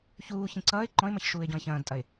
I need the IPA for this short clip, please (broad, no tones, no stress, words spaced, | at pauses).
çuːçĩ ǀʌːɪ̯ ǃɔ̃ɪ̯mɐç ʃuːɪ̯ɟɔ̃ɪ̯çɐ̃ːdtʼɐɪ̯